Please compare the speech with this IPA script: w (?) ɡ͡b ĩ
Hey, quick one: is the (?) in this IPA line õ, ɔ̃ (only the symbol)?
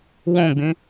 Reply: õ